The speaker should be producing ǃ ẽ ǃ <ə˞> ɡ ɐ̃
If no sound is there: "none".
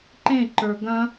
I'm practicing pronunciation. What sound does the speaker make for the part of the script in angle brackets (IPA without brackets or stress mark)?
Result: ə˞